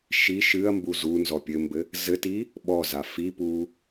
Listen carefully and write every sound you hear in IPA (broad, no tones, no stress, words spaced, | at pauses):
ʃi ʃɨɐ̯mbu zunzɔ pʲɘmbɘ | zɘti | ɓɔza fipu